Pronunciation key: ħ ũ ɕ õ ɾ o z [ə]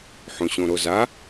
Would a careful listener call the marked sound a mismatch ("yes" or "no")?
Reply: yes